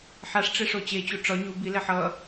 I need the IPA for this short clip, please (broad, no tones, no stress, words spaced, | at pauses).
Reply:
ħaʂʈ͡ʂeʂo t͡ɕet͡ɕu ʈ͡ʂɒ ɲu bilɛħ ʌ